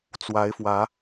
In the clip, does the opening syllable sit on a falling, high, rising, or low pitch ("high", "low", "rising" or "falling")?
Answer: rising